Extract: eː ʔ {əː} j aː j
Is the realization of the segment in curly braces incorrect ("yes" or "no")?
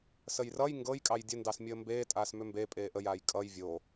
yes